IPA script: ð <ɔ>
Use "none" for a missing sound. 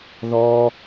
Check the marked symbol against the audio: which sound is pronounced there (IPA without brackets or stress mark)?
ɔ